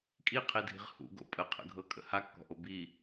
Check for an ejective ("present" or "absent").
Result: present